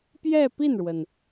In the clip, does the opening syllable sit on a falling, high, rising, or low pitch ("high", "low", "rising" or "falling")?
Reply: falling